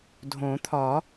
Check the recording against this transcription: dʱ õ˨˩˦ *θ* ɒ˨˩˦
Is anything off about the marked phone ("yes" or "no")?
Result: yes